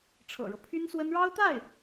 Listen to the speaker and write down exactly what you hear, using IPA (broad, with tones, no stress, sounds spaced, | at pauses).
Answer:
ʈ͡ʂʰ ɤ̰˨˩ ɻ ɤ˦ pʰ y˥ n s w ə˥ n ɻ ɑ˥ ʊ̯ t̪ a˥˩ ɪ̯